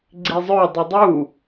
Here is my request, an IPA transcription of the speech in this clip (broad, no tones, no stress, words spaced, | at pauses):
ɡ͡ǀizˤœ dˤidˤu